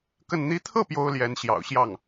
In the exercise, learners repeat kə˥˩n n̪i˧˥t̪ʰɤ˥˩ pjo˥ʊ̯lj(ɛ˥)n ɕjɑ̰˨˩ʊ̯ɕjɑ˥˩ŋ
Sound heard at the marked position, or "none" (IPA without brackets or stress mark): ɛ˧˥